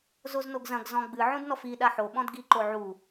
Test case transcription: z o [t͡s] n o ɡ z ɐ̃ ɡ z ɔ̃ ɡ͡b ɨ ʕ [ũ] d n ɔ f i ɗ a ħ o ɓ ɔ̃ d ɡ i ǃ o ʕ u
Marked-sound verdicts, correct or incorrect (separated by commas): incorrect, correct